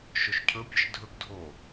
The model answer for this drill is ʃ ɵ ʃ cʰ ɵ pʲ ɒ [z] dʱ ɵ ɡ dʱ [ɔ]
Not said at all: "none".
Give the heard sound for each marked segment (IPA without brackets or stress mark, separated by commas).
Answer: ʃ, o